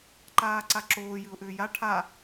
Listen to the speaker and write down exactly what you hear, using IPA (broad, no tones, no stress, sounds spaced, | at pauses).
ǃ aː ǀ a ǁ oː j ɨ ʊ̯ ʔ ʏː j a ʈʰ a